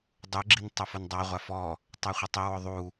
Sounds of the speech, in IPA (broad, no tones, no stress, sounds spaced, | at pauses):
dˤ u ɡ͡ǁ i n tˤ ɛ f ʊ n dˤ a ʁʷ a f ɔ | tˤ ɛ χʷ ɪ tˤ ɪ w ʊ ðˤ u